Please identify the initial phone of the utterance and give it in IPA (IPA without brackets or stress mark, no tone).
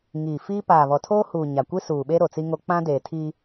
ŋ